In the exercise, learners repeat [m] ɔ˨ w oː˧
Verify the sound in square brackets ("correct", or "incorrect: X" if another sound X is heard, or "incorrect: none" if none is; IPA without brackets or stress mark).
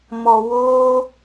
correct